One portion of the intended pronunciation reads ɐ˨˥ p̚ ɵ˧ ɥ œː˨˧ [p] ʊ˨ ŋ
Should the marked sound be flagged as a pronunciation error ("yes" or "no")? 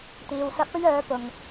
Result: no